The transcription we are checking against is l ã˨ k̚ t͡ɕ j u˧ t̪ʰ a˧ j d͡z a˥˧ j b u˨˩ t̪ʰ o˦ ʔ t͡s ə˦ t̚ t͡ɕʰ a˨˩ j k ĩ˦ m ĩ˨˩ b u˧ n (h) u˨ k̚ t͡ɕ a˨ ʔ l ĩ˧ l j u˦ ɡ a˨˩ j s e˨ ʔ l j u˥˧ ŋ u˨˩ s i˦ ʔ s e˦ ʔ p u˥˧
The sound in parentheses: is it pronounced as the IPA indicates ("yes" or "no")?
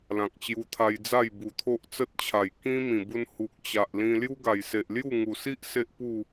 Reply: yes